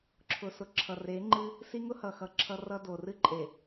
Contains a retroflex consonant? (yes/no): no